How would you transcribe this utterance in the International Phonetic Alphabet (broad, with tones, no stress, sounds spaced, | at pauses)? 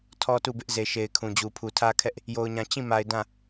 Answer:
tʰ ɔ˦ t u˦˨ b ɪ˦ ʔ z e˨ ʃ e˨ ɪ̯ kʰ ũ˨ d͡ʑ u˨ pʰ u˨ tʰ ä˦ kʰ ɛ˦ ʔ | j o˨ ʊ̯ ɲ ã˨ t͡ɕ ĩ˦˨ m a˨ ɪ̯ d ã˦˨